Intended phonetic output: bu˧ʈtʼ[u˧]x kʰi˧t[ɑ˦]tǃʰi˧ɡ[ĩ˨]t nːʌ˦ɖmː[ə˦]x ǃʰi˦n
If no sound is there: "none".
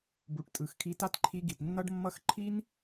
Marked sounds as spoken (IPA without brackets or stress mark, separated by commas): ɯ˧, a˦, i˨, ʌ˦